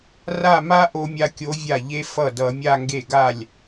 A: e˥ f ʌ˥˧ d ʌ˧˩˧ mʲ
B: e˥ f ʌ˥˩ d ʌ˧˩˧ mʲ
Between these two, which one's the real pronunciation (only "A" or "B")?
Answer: B